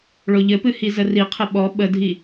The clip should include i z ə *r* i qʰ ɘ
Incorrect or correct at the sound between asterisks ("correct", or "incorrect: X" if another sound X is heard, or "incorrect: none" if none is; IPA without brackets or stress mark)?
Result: correct